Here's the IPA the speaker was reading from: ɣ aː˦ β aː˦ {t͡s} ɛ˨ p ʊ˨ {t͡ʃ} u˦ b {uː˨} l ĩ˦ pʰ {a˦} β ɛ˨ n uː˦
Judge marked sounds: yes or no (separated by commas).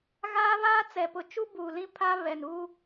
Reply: yes, yes, no, yes